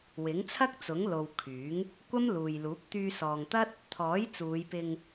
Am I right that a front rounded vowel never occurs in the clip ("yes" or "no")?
no